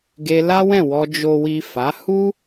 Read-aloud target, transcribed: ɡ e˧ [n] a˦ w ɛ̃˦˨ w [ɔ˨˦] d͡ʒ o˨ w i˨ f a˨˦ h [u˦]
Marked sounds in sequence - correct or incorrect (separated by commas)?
incorrect, incorrect, correct